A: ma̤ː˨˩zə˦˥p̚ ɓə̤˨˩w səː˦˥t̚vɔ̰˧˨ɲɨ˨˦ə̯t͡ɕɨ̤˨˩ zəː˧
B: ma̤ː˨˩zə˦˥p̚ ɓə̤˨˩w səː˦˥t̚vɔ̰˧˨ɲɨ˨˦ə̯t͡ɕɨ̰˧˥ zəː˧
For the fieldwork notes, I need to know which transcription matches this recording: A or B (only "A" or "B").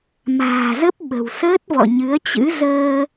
B